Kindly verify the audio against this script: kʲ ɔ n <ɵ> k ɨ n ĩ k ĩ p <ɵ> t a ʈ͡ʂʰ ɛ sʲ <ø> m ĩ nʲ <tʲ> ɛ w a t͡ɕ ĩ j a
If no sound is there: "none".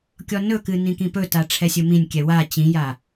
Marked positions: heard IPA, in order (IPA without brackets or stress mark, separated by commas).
ɵ, ɵ, ɵ, kʲ